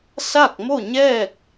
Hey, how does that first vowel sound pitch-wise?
falling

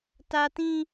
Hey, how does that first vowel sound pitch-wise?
high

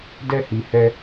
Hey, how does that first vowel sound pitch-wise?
high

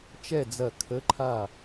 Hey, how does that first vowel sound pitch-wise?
falling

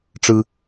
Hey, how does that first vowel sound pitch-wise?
high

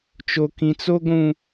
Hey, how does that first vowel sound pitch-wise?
high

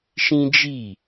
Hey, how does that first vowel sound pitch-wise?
high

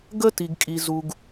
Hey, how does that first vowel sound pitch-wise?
high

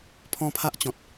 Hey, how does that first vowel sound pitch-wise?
high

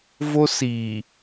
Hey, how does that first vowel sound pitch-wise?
high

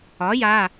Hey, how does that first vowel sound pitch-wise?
rising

